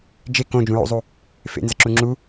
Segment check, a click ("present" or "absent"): present